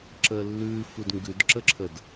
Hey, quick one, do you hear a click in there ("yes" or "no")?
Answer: yes